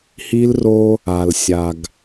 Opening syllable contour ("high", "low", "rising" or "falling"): high